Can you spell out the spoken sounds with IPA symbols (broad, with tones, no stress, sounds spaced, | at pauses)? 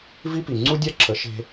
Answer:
v i˦ p i˨ ŋ͡ǀ u˦ dʲ a˦ ǁʰ ə˨˦ ʃ e̤˧